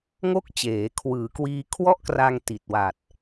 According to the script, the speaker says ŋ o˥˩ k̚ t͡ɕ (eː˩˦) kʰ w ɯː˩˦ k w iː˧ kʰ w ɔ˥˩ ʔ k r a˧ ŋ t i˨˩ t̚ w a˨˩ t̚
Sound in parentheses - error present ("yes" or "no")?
no